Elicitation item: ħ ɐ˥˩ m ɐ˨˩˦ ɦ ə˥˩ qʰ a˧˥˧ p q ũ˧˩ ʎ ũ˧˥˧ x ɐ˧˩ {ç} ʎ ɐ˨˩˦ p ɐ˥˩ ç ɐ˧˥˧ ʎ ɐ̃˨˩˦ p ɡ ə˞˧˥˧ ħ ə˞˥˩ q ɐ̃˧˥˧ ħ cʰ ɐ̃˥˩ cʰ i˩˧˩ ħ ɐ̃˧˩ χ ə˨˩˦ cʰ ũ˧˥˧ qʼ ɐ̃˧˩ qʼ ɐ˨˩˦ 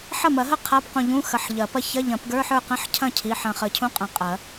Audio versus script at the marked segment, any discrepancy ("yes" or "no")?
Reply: yes